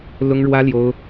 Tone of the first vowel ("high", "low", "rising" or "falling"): high